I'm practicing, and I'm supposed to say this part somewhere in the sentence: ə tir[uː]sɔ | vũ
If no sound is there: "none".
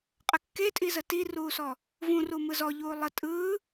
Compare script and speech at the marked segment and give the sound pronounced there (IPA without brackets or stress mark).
uː